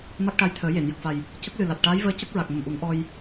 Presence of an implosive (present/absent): absent